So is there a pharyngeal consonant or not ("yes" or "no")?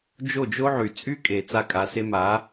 yes